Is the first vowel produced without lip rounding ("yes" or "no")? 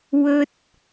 no